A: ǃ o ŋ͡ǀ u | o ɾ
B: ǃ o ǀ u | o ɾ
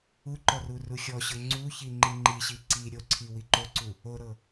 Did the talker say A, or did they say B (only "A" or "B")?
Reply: B